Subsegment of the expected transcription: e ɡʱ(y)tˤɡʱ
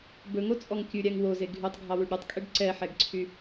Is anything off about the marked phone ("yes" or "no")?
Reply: no